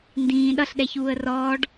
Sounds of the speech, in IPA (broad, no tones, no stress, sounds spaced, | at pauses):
n d ĩː ɗ ʌ ɬ ɗ ɛ ç uː ə̯ r ɔː ɖ